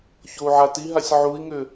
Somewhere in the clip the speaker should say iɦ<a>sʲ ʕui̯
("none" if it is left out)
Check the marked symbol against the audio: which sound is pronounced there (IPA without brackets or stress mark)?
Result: a